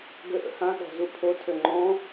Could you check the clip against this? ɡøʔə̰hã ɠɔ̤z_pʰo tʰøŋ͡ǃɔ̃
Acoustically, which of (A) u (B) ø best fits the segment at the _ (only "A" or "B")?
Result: A